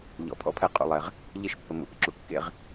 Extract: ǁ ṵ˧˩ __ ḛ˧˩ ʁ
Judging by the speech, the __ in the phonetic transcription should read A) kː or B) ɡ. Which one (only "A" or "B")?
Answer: A